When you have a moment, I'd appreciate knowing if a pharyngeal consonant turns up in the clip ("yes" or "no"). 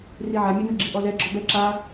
yes